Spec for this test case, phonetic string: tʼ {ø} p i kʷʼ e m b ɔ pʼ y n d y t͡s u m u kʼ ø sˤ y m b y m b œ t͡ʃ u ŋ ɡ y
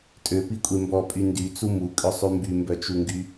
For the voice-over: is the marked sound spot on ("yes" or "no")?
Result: yes